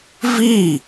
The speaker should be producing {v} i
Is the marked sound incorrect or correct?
correct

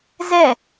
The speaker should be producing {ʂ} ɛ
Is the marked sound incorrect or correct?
incorrect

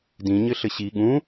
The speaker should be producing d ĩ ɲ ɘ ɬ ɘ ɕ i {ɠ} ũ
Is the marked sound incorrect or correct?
correct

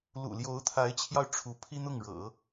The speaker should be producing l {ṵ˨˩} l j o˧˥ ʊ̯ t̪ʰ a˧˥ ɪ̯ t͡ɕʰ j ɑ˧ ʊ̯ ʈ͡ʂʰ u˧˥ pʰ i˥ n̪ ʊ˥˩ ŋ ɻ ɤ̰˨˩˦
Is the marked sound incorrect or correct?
correct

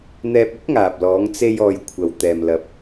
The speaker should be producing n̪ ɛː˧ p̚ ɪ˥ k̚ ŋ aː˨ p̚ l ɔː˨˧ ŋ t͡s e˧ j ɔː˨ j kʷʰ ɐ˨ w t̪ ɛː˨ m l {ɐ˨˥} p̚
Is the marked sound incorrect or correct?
correct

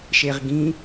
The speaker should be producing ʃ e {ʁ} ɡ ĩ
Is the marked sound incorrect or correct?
correct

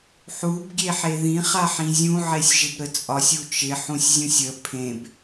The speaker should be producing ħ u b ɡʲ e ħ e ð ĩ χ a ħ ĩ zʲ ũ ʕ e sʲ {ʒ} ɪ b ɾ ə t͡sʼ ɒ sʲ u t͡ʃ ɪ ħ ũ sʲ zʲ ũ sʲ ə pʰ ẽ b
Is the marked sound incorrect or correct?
correct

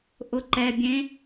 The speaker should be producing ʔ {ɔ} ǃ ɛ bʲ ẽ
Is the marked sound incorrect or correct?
incorrect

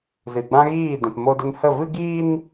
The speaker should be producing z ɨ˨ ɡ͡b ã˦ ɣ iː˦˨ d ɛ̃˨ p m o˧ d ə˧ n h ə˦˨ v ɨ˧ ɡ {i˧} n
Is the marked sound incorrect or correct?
incorrect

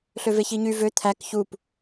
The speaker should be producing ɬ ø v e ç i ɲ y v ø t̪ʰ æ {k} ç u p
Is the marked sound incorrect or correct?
correct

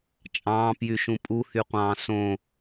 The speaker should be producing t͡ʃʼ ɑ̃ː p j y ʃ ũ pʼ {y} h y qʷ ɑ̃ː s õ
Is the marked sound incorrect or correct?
incorrect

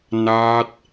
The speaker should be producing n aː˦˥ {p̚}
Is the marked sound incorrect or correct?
incorrect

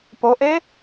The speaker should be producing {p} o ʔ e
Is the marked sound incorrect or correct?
correct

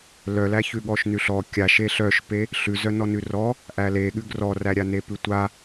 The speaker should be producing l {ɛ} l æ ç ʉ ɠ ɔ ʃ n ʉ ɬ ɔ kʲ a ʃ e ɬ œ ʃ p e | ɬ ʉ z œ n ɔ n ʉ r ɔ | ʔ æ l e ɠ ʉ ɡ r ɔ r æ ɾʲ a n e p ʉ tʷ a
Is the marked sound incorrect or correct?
incorrect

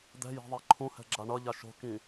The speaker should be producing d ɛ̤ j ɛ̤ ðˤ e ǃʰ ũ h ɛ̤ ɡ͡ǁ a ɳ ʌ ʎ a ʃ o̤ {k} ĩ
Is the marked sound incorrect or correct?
correct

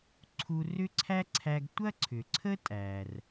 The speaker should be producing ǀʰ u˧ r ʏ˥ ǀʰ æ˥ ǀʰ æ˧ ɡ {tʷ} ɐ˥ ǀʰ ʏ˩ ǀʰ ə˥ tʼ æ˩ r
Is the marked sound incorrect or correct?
correct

